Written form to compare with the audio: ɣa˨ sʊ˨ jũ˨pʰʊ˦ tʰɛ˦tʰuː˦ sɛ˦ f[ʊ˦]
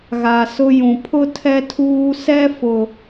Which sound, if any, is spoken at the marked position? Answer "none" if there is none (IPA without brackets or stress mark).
ʊ˦